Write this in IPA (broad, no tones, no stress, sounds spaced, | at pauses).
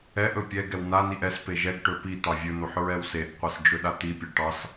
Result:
ɛ ʔ ɵ pʲ ɛ ɡ ɛ w n a n i ʔ ɛ s p e ʒ ɛ ɡ ʈ ɵ p i t̪ ɑ vʲ ɵ n̪ o ħ ɹ ɛ w s e ʔ qʷ ɛ s d͡ʒ ɵ ɗ a t̪ i pʲ ɑ ʈ ɑ s